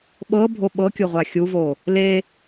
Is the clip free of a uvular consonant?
no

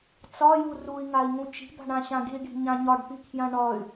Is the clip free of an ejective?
yes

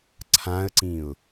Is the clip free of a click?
no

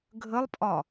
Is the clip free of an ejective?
no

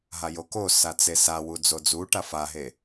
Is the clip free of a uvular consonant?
yes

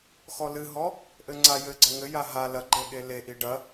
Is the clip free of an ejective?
yes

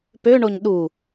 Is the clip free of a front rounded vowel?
no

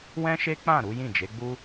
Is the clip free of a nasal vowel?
no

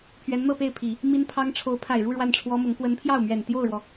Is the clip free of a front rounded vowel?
yes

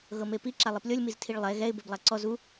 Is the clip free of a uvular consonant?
yes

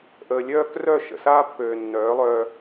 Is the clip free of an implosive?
yes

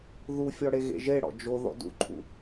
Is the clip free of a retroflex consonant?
no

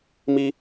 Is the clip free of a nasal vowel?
yes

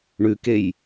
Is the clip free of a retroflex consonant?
no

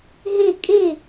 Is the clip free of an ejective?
no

